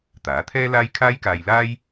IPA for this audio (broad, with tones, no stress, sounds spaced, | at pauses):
t̪ aː˨˥ t̪ʰ ɛː˥ l aː˥ j kʰ aː˥ j k aː˧ j l aː˥ j